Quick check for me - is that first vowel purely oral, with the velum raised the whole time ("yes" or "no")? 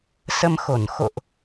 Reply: yes